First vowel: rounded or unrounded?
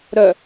rounded